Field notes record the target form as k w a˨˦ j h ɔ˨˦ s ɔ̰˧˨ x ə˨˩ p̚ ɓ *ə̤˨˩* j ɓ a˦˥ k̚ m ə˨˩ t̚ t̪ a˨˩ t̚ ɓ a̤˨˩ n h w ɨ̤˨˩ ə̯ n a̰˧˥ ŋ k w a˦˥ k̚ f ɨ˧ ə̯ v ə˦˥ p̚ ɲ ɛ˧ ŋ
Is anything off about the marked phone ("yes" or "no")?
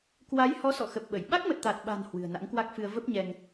yes